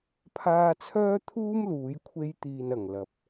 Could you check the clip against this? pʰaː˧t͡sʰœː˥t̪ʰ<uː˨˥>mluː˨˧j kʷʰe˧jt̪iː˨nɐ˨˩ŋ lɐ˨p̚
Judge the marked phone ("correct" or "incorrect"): incorrect